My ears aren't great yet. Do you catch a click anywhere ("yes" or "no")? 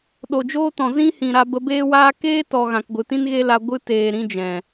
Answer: no